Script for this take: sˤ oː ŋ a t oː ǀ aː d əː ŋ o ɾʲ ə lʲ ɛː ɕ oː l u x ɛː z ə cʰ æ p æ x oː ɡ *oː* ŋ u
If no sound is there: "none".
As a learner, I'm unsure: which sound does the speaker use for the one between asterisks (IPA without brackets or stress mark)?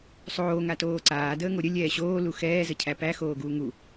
uː